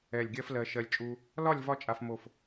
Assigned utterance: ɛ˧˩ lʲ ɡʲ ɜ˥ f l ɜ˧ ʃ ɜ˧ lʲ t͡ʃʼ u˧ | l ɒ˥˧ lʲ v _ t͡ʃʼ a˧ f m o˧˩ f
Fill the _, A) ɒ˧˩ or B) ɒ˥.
B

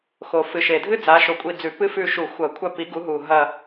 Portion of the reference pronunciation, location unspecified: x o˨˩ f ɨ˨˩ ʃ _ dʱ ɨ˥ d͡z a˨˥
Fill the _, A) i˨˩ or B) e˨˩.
B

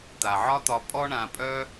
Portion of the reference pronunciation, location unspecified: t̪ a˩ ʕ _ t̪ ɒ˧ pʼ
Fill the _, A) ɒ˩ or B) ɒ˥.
B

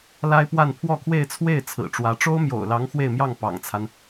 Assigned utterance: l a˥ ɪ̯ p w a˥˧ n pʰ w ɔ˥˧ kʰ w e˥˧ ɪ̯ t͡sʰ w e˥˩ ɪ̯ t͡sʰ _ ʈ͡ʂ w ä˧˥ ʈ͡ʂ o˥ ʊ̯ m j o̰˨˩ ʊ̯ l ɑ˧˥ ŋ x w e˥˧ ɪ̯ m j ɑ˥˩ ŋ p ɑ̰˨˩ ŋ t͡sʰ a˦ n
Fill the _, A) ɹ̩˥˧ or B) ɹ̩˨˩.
B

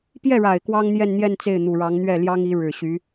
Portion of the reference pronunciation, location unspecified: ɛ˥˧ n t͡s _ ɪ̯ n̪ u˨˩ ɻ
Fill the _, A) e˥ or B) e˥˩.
B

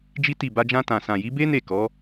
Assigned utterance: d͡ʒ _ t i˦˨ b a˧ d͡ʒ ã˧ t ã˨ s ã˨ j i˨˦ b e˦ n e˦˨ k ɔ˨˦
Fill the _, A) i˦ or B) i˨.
A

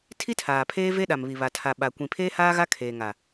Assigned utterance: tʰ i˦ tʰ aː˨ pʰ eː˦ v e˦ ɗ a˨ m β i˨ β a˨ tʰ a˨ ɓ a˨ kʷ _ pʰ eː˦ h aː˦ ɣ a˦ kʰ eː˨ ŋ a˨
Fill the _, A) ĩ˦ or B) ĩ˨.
B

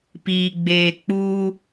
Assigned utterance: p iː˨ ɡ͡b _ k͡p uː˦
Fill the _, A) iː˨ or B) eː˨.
B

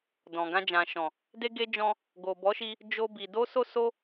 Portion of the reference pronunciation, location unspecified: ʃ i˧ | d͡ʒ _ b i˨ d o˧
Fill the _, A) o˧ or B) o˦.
A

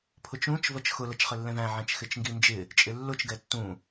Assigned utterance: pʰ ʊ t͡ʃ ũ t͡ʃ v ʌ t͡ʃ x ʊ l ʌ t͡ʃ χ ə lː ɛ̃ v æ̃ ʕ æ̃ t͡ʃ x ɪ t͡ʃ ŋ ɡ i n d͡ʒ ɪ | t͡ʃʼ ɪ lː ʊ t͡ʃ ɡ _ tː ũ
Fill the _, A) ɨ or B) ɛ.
B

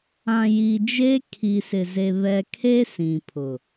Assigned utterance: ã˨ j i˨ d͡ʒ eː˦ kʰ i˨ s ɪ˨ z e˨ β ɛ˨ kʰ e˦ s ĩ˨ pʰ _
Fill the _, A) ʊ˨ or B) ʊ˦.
A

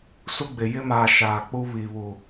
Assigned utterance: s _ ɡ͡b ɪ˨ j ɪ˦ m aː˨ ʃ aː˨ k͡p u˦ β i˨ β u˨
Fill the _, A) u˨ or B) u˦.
B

